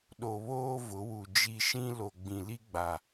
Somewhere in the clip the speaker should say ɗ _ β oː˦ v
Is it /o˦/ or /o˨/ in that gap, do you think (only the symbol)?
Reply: o˨